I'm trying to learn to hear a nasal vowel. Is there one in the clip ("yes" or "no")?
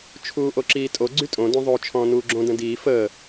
yes